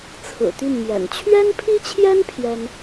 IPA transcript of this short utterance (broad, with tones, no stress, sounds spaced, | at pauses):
t͡sʰ ɹ̩˨˩ t̪ y˥˩ n m j ɛ̰˨˩ n t͡ɕʰ ɥ ɛ˥ n pʰ i˥ t͡ɕʰ j ɛ˥ n pʰ j ɛ˥ n